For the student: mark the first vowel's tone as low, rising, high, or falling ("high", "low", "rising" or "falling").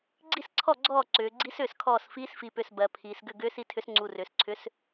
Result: falling